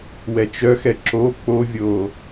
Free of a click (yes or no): no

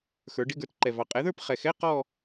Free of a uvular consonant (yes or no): no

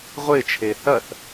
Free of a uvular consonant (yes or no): no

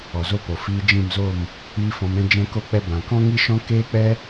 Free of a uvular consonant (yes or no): yes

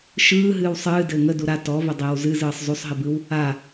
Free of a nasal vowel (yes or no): yes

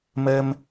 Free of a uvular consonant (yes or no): yes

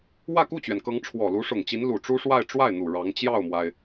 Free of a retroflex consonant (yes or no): no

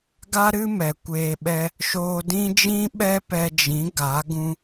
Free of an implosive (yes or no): no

